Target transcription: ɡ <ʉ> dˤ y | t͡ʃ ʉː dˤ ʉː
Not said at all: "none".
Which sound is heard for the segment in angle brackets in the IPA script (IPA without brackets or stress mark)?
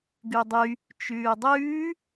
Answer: ʉ